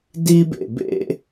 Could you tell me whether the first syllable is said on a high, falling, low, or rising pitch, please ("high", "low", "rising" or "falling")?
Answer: high